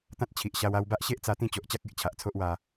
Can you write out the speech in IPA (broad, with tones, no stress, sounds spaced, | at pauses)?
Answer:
t̪ ã˦ t̚ t͡ɕʰ i˨ ʔ ɕ a˧ w a˧ w b a˦ ʔ ɕ e˦ ʔ t͡s a˧ t̪ ĩ˥˧ t͡ɕ o˨ ʔ t͡ɕ a˦ k̚ e˨ ʔ t͡ɕʰ a˨ ʔ t͡sʰ o˦ ʔ w a˧